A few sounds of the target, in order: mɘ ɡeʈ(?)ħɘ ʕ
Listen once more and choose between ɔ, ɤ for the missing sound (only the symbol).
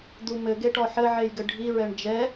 ɔ